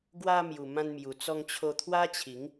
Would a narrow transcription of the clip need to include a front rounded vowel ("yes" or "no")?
no